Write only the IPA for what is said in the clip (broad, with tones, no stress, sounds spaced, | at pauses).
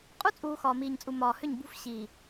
qʼ u˦ t͡sʼ uː˨ x ɒː˨ m iː˨ ɲ t͡sʼ u˨ m ɒː˨ h ʏ˦˨ ɲ b ṳ˦ f ɕ iː˨